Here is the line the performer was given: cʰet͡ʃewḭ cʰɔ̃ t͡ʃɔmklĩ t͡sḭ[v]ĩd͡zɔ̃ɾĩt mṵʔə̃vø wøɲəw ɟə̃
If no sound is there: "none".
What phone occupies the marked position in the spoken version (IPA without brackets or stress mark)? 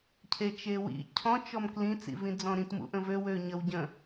v